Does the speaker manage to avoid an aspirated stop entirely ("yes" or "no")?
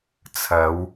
no